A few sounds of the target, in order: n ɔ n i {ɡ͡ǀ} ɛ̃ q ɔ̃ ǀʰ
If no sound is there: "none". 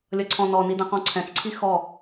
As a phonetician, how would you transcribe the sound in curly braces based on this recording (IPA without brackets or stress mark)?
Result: d